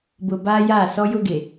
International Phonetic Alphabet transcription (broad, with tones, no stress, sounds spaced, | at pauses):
b ʊ˨ b aː˦ j aː˦˨ s ɔ˦ j ʊ˦ ɡ e˨